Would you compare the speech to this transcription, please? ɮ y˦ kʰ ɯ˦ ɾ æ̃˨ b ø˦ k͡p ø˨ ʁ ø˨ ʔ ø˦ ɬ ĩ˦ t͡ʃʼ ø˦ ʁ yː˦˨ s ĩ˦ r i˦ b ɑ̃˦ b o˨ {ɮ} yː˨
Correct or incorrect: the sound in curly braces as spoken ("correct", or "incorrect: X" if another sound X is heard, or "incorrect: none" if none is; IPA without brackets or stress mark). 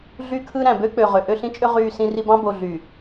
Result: correct